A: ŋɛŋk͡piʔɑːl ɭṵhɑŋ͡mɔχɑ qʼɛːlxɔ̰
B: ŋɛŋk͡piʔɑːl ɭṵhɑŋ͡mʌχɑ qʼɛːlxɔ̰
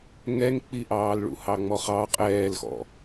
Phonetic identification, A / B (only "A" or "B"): A